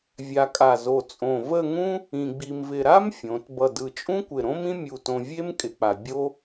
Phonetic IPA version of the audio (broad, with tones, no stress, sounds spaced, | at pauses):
vʲ a˧ kʼ a˧˩ z o˧˩ t͡sʼ õ˧˩ v ə˥˧ ŋ ũ˥ | ĩ˧ ɡ͡b i˧ m v ɪ˧ ɾ a˥ m fʲ õ˩˧ t b ʌ˧˩ d ɯ˧˩ t͡ʃʼ ũ˥ kʷ ɪ˧˩ ɾ õ˥ m ĩ˥ mʲ u˧˩ t õ˧ vʲ e˥ m kʼ ɪ˧ k͡p a˧ bʲ o˥